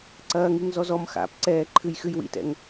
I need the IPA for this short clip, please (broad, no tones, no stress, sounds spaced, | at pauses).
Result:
ǀ ɐː ŋ i ŋ z ɔ z ɔ m x a̰ p ǀ ɛː ǃʰ ɨ j x ɨ j w ḭ t ɛ̰ ŋ